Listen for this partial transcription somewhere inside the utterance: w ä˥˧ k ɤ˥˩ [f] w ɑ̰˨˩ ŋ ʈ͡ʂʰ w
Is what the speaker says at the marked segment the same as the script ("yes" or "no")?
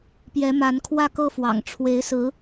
yes